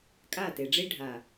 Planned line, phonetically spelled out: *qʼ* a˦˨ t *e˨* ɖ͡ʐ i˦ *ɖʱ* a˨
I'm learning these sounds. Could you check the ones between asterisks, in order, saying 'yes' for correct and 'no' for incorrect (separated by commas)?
no, yes, yes